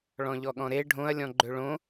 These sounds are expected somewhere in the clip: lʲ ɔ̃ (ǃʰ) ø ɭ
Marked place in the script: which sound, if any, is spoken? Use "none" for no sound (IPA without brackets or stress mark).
ɡ͡ǃ